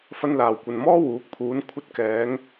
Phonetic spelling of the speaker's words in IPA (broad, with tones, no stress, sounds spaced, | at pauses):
f ɐ˧ n l aː˨˩ w kʷ ɐ˨ n m ɔː˥ w uː˨˥ k̚ pʰ uː˨˧ n kʷʰ ɐ˧ t̚ k ɛː˨˧ ŋ